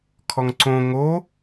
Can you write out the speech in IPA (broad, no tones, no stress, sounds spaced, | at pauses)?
kʰ ɔ ŋ ǀ õ ŋ o